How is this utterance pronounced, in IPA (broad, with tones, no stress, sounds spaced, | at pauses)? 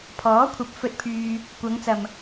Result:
pʰ ɔː˨˥ kʷʰ ɐ˨˥ p̚ f ɵ˧ t̚ pʰ yː˧ | kʷ ɐ˨˧ ŋ t͡s ɐ˨ m